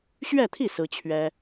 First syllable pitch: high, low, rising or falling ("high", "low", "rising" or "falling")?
falling